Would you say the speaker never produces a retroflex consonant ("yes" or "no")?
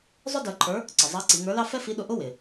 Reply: yes